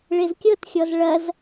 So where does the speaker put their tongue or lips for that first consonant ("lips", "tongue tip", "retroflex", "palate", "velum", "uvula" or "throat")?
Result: retroflex